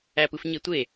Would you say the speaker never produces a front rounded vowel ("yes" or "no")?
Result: yes